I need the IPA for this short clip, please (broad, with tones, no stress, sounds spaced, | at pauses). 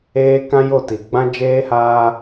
eː˦ k ã˦ j o˦˨ t i˨ ɡ͡b ã˦ d͡ʒ eː˦ h aː˦